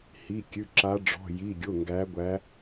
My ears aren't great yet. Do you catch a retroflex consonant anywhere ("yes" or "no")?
yes